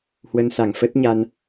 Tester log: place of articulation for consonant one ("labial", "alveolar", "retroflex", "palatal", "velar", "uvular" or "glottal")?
glottal